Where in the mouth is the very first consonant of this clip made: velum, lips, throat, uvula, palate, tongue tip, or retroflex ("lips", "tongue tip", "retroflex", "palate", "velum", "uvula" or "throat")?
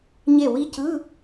palate